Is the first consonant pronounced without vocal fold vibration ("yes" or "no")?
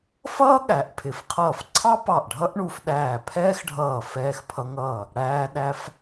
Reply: yes